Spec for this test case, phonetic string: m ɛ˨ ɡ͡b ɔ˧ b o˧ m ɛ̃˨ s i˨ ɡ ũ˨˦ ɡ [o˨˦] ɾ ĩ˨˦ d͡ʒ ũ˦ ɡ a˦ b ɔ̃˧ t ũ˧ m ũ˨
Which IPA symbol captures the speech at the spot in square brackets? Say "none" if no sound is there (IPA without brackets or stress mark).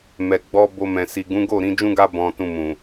o˦˨